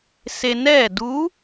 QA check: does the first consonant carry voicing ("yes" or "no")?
no